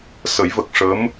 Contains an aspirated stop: no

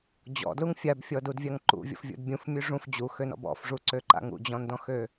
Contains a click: yes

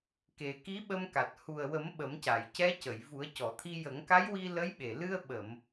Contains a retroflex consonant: no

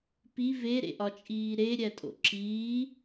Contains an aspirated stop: no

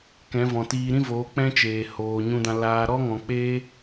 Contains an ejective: no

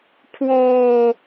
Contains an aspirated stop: yes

